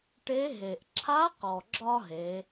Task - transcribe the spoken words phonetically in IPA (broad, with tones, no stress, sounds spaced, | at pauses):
ʈ e˧˥ ɦ e˩ ʔ ǁʰ a˧˥ q ɔ˩ ɡ͡ǁ ɒ˥ ɦ e˩˧